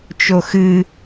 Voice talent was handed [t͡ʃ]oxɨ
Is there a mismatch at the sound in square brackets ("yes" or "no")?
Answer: no